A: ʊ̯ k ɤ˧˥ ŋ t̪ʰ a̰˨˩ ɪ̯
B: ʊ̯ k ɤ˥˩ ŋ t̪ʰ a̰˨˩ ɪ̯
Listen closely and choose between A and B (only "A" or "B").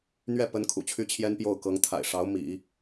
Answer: A